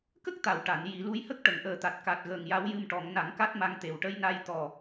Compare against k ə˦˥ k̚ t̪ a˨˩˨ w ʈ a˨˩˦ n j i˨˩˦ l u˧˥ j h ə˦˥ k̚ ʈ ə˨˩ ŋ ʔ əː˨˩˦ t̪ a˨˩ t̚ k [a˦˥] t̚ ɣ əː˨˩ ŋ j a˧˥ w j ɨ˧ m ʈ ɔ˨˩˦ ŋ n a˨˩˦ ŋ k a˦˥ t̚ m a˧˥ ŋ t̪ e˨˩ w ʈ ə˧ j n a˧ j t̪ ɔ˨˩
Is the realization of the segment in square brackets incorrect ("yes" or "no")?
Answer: yes